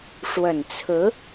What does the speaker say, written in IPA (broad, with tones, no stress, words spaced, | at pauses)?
ʂwə˨˩nt͡sʰɹ̩˧˥